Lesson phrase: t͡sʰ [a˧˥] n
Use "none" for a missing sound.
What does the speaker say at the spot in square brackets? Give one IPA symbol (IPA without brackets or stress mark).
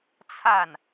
a˥˩